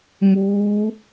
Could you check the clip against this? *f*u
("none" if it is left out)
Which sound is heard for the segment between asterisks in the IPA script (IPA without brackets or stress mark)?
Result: m